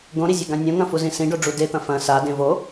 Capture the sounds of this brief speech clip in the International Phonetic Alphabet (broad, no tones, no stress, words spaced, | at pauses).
ɡõɾizʲeɡã nʲõŋɐ̃fuzĩ sĩɖoɖ͡ʐu det̪ɐ̃ fɐ̃ sadẽ vo